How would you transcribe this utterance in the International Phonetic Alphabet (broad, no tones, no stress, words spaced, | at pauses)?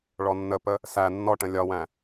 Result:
ɭɔnːəpə | sæ nːɔʈə̃ lʲɒwæ̃